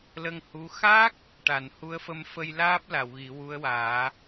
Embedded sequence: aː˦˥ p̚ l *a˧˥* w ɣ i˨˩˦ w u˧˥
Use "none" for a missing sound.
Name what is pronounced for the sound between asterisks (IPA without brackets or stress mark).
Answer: a˨˩˨